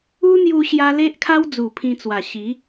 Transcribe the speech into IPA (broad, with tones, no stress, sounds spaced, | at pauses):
u˦ n̪ j u˧ ɕ j a˧ l e˦ ʔ kʰ a˦ w d͡z u˨˩ pʰ ĩ˧ t͡s w a˨˩ ɕ i˨˦